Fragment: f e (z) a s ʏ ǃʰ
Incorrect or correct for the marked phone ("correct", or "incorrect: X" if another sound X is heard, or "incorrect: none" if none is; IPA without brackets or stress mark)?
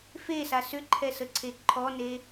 incorrect: s